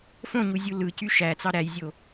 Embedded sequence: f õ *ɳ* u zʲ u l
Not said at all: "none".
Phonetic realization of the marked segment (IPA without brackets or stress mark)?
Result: ɲ